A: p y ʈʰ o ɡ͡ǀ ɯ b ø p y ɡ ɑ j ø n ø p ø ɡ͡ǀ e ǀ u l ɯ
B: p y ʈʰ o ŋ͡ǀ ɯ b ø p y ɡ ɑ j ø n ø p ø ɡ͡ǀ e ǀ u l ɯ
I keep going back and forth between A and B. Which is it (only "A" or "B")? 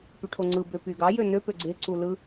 B